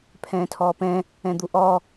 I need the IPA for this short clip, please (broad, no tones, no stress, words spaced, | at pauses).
pʰɛ̃ːtʰɔːpɛ̃ | ɛ̃d̪uʔɔ